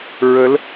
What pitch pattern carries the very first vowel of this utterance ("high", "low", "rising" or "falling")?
rising